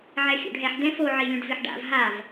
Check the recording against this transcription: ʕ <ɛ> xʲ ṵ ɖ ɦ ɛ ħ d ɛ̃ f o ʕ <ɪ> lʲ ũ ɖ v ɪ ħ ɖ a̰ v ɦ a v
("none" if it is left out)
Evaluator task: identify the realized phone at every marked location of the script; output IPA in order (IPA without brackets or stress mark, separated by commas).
ɛ, i